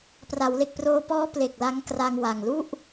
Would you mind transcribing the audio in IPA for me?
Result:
pra˩˦wle˨˩k̚proː˧pɔː˦˥ ple˨˩k̚ la˦˥ŋkra˧ŋwa˨˩ŋ lu˥˩ʔ

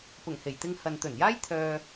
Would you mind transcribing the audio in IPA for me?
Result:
pʊ˨˩ŋhe˨˩jt̪ɪ˧ŋ hɐ˨nt̪ɵ˨˩njaː˥j t̪ʰœː˧

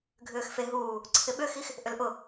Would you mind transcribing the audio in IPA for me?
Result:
ɡʱʏːxfe ɦuː | ǀʰɪɓʏxix | ʔʏlʔʊ

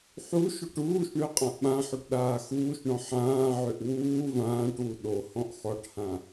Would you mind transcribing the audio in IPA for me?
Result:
ħu ʃoʈuːʃɳø qʼãʔɓãħoʈ ɗaːxuːʃɳɔ̃ ħãːʕøʔ wuː vãːʈwu ɗo hɔ̃ʔxɔʈhã

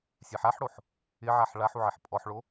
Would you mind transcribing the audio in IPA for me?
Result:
sʲɛħaħɽoħ | ɪʕaħ ɭaħ uʕeħpʼɔħɭo

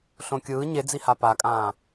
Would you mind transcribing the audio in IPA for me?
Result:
ɬõkʲɯː ɲed͡ziha pakʼãː

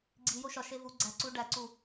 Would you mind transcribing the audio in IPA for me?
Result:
ɡ͡ǀi joʃɒ ʃevu ɡ͡ǀæ ǀu ɖæǀu

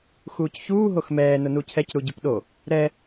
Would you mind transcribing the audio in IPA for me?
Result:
xuːcçuː ɦoxmɛː nʊnucʰɛc ɾuɟupɗo | ɾɛ

